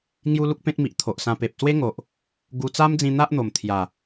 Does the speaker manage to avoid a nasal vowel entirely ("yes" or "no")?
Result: no